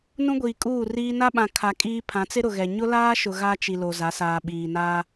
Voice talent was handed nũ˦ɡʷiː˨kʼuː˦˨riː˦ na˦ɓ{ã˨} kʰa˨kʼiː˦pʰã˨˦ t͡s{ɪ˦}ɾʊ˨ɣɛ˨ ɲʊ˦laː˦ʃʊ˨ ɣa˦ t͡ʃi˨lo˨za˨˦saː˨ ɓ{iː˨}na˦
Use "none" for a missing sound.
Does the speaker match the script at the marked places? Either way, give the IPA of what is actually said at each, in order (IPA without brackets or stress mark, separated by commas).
ã˨, ɪ˦, iː˨